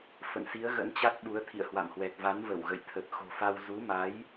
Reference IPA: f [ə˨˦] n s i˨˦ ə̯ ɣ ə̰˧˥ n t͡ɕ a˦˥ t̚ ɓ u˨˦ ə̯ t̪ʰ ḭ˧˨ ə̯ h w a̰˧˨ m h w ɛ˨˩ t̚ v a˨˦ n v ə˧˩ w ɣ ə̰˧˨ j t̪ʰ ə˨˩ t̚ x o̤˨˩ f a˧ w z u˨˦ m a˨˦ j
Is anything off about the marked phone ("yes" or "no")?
yes